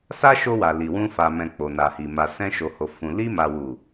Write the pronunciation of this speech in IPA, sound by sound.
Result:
s a˦ ʃ o˧ w a˨ l i˨ w ũ˧ f a˨ m ɛ̃˨ k͡p o˨ n a˨ h i˨ m a˨ s ɛ̃˧ ʃ o˨ h o˨ f ũ˨ l i˧ m a˨ w u˨

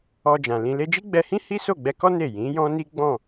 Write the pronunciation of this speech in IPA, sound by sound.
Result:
ɔ˧ d͡ʒ ã˨ l ĩ˧ l e˧ d͡ʒ i˦ ɡ͡b ɛ˧ h ĩ˦ h i˦ s o˦˨ ɡ͡b ɛ˧ k ɔ˦ n e˦˨ j ĩ˨˦ j ɔ̃˦ n i˦ ɡ͡b ɔ̃˦˨

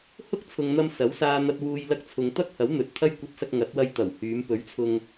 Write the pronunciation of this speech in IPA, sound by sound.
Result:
h ʊ˥ k̚ t͡sʰ ʊ˨ ŋ n̪ ɐ˧ m s ɐ˨˥ w s aː˧ n̪ ɐ˧ t̚ w uː˧ j l ɐ˧ k̚ t͡sʰ ʊ˨ ŋ t̪ ɐ˥ k̚ h ɐ˨˥ w n̪ ɵ˨ t̚ t̪ʰ ɐ˥ j kʷ ɐ˧ t̚ s ɐ˧ k̚ ŋ ɐ˨˥ t̚ w ɐ˧ j t̪ ɐ˨˩ w h yː˨˧ m p ɵ˨˥ ɥ t͡sʰ ʊ˧ ŋ

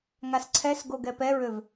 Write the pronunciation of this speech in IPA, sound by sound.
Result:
ŋ a s ǀʰ ɛ s ɡ o ɡ ɛ p ɛ ɹ ø v

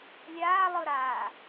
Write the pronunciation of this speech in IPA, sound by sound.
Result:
lʲ aː lˠ ɯ ɾ aː

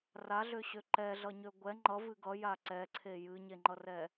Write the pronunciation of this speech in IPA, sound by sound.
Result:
r a ɮ ø ɕ ø ǃ ɛ ɮ ʌ ɲ ø ɡʷ ɛ ŋ͡ǃ ʌ v ɨ ɡ ʌ j a ǀ ɛ ǀʰ e j ɨ ɲ e ŋ͡ǃ ʌ r ɛ

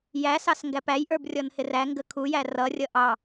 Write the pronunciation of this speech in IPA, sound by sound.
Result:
j æ s ɑ s ŋ ɡ æ p æ j ʔ ə˞ b rʲ ɔ n h ɪ r æ ŋ ɡ ə kʰ u j æ r ʌ rʲ ʌ ʔ ɑ

